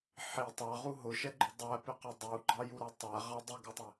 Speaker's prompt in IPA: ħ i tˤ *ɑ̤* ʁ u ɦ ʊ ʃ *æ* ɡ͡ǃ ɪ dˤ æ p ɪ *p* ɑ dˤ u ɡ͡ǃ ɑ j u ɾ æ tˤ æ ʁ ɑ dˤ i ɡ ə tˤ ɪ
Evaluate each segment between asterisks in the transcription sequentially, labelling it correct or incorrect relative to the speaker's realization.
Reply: incorrect: ɑ, incorrect: ɛ, incorrect: q

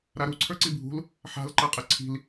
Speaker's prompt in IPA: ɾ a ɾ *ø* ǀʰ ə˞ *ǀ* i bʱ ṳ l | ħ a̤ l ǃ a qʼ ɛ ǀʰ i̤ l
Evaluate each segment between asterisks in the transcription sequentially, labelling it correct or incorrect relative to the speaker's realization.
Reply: incorrect: u, correct

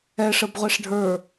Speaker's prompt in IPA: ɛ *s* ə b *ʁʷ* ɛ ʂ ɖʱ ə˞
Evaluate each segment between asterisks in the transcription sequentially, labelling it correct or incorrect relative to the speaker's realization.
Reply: incorrect: ʂ, correct

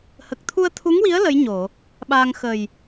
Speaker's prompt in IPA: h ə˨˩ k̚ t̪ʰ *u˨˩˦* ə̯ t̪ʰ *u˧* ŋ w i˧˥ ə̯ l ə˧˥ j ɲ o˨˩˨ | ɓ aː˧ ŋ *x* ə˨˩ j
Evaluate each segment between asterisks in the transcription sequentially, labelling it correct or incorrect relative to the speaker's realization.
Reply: incorrect: u˧, incorrect: u˧˥, correct

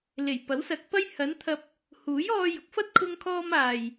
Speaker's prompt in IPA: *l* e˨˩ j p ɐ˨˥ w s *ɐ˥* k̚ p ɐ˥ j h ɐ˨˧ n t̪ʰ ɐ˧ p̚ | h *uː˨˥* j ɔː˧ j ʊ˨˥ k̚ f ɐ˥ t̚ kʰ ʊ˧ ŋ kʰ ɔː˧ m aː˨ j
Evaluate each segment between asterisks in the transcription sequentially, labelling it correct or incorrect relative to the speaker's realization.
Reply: correct, incorrect: ɐ˨˥, correct

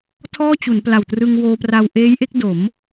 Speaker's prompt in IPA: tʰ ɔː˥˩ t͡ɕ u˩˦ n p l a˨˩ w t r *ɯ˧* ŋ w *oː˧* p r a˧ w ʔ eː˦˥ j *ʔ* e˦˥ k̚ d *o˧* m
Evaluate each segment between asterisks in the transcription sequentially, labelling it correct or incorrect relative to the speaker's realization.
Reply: correct, correct, correct, incorrect: o˩˦

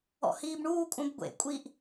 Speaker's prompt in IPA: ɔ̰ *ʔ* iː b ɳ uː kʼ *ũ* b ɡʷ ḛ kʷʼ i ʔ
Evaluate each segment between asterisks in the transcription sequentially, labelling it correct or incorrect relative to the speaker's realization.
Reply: incorrect: h, correct

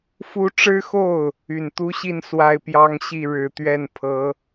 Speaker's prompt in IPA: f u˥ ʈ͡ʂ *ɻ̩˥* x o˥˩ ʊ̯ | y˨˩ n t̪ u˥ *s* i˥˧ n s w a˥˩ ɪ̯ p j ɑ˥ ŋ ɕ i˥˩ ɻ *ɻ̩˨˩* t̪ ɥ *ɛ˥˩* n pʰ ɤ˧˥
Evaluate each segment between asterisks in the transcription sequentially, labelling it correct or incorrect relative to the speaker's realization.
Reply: correct, incorrect: ɕ, correct, correct

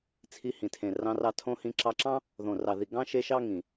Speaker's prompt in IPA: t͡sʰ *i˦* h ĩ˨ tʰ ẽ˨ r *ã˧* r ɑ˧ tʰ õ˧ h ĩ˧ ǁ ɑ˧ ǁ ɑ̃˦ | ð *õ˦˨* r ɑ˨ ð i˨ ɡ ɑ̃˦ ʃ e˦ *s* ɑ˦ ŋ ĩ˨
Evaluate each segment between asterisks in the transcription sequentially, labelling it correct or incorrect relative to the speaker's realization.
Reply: incorrect: i˧, incorrect: ɑ̃˧, incorrect: õ˨, incorrect: ʃ

